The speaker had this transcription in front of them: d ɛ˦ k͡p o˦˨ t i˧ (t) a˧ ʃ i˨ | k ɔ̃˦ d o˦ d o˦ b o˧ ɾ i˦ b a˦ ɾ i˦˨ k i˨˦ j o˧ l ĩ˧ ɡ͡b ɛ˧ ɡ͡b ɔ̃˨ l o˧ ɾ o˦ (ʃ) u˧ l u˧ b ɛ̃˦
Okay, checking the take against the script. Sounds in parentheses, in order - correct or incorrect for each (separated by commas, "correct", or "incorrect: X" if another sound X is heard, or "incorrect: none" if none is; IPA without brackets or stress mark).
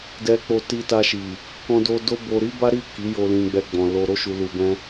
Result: correct, correct